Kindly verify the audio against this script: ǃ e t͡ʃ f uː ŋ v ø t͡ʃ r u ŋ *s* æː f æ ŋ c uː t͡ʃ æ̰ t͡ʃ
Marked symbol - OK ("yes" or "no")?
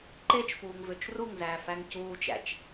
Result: no